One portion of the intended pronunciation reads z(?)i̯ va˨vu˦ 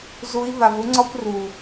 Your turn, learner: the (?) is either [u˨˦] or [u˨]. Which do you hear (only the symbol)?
u˨˦